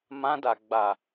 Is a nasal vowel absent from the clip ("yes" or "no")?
no